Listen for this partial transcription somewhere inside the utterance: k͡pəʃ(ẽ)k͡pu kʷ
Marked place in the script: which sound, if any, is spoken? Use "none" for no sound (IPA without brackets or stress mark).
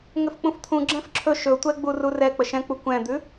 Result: ɛ̃